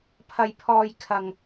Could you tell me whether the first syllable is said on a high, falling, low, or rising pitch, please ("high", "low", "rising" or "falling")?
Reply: high